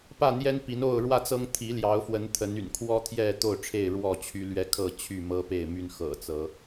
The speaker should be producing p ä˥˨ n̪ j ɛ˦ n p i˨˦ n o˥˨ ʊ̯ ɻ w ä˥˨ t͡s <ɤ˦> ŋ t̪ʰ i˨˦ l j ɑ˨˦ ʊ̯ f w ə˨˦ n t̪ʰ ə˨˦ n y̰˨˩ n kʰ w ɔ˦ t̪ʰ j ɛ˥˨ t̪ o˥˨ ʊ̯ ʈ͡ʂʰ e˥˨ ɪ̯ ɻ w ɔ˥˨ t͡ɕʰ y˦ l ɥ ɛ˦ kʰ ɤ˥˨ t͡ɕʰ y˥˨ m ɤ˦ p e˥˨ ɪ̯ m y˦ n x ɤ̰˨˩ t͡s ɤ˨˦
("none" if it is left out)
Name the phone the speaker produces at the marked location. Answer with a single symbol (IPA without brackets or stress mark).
ɤ˦